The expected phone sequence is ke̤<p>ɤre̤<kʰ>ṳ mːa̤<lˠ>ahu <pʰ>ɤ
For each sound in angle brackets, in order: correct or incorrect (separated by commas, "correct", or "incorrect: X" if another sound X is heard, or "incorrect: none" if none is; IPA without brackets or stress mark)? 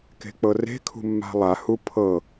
incorrect: k͡p, correct, correct, correct